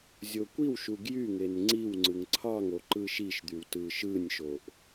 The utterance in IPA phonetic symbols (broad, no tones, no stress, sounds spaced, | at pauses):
zʲ o kʷ i w ʃ u ɡ j y ŋ e n ŋ͡ǀ i w ŋ͡ǀ ɯ ŋ ǀʰ ɑ ŋ o ǃ ɯ ʃ i ʃ d̪ y w t ɯ ʃ ɯ nʲ ʃ o ʔ